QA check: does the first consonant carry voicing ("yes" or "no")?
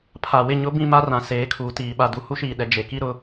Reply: no